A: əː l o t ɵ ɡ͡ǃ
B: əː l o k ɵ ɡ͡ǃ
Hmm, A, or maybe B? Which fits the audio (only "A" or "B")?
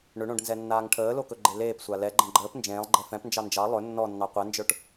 B